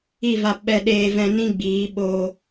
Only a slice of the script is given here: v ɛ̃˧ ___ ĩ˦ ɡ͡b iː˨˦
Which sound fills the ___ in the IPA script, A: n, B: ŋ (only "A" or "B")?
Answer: A